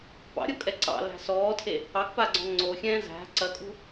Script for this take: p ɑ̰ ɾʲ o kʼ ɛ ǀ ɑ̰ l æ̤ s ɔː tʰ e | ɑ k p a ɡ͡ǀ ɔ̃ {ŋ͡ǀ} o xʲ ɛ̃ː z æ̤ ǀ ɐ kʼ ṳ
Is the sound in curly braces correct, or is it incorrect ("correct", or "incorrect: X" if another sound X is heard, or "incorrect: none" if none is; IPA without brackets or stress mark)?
correct